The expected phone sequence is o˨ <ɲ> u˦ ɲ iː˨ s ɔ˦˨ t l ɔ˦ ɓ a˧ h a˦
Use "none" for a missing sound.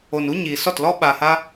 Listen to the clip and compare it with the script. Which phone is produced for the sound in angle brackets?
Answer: n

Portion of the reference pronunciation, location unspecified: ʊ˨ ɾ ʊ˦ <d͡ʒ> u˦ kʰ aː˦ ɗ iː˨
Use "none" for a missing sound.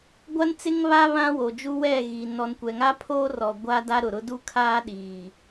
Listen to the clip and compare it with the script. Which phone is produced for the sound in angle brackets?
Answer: d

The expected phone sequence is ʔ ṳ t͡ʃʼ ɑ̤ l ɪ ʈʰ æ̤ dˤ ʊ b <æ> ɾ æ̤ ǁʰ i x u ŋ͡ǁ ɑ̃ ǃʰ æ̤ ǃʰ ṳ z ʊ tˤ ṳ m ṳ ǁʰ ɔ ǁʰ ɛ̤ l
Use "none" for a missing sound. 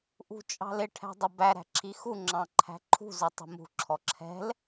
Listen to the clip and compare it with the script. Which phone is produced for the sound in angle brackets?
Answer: æ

